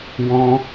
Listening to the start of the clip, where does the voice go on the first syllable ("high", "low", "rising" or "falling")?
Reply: high